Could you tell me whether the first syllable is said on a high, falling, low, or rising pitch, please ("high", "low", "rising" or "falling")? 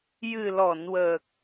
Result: low